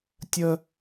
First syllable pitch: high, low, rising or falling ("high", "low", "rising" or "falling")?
high